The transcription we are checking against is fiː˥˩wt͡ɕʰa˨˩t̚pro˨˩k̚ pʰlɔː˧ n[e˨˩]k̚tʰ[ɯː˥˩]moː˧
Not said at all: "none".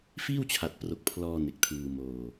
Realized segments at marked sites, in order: e˨˩, ɯː˧

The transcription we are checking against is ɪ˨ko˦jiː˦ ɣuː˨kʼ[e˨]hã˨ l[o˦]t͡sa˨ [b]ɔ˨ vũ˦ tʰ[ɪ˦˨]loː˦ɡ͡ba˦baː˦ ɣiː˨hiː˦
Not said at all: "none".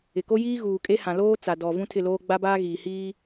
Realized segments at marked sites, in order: e˦, oː˦, d, ɪ˦˨

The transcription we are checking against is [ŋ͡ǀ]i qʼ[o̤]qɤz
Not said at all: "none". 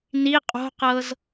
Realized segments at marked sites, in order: n, o̤

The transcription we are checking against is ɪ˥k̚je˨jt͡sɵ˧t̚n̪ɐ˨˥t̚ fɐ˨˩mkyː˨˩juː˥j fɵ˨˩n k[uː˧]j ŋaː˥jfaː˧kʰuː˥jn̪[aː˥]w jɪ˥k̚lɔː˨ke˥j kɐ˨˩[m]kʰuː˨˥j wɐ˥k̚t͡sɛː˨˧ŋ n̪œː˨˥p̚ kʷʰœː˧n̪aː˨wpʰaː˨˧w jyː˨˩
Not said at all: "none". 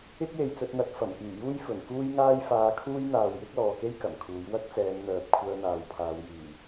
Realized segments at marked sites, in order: uː˥, aː˨, m

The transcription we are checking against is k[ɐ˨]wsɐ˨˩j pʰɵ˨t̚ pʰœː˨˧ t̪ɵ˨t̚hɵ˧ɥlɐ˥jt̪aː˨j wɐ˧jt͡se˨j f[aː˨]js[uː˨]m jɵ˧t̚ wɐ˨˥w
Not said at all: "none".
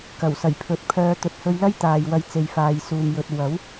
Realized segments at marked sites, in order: ɐ˨˩, aː˨, uː˨

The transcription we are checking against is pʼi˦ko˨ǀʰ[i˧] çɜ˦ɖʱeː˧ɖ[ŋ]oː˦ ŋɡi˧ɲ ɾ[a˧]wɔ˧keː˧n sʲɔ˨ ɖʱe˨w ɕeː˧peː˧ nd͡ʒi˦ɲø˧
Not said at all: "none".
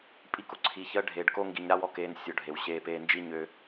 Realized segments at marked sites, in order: i˧, k, a˦

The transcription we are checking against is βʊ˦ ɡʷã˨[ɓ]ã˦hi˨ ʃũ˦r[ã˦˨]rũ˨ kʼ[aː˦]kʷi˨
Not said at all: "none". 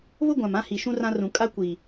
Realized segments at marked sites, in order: m, ã˦, a˦

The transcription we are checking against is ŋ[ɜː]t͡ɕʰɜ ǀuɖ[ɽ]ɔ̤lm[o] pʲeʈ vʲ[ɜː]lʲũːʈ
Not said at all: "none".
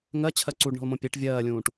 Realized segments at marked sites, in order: ɜ, ɳ, õ, ɜː

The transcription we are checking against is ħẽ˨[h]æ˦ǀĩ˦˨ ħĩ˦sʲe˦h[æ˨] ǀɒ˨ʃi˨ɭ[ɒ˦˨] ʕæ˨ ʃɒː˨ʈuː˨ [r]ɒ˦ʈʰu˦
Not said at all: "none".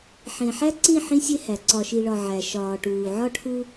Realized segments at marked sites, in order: ħ, æ˨, ɒ˨, ʕ

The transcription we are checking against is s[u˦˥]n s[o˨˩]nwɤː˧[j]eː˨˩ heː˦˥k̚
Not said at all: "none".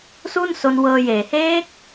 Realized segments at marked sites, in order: u˥˩, o˧, j

